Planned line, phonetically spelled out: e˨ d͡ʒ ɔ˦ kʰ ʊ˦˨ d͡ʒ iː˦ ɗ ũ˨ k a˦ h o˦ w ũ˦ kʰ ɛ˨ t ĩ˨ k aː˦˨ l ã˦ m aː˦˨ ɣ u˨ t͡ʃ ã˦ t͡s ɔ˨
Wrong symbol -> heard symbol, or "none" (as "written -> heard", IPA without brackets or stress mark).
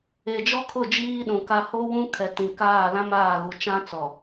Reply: none